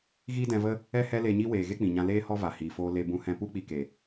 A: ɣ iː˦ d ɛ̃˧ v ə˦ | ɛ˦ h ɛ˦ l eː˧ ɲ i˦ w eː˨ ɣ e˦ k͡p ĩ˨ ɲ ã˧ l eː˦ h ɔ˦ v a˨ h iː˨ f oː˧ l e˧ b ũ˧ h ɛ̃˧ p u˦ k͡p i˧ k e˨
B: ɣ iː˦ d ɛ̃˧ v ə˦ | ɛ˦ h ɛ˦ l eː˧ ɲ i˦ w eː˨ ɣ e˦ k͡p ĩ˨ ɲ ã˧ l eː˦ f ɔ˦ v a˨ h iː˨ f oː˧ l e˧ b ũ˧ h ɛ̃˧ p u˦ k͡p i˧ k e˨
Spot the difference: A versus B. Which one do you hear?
A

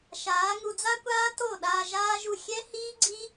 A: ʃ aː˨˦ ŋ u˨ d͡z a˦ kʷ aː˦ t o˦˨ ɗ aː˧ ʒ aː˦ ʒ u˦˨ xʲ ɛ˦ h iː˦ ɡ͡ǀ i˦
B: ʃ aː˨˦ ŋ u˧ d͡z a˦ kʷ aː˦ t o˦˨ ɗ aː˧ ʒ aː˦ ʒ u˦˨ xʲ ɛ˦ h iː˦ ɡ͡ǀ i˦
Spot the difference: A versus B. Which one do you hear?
B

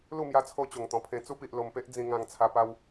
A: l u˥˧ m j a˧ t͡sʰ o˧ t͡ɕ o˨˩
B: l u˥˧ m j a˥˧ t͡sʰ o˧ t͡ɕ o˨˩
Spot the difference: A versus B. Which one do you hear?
A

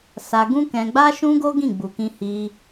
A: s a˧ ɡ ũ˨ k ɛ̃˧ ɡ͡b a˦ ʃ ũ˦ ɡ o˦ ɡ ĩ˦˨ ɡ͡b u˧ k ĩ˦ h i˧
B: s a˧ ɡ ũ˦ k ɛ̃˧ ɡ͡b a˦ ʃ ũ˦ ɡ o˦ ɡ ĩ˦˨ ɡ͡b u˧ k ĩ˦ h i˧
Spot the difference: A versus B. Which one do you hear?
B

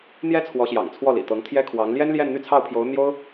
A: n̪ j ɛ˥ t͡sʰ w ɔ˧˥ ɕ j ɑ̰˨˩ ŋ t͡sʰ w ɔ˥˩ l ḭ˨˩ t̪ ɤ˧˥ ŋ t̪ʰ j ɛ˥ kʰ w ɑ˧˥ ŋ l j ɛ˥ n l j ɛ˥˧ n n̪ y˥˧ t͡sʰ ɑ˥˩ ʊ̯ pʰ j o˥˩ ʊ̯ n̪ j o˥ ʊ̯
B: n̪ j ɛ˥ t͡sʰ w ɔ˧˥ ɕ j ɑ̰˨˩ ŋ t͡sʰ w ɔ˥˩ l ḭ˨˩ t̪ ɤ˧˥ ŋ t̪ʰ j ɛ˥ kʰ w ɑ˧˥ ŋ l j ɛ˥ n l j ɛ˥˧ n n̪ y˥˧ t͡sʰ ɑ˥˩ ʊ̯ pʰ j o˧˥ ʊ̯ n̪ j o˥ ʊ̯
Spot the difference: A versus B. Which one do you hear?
B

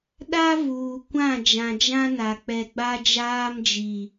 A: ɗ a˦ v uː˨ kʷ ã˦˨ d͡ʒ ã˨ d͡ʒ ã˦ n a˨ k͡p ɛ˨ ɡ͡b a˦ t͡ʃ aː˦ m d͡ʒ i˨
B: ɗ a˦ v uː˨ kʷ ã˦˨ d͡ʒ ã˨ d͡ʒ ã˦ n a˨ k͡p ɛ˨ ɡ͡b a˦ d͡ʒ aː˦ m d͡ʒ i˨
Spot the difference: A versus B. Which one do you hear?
B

